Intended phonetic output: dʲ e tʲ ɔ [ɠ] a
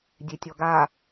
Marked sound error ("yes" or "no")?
yes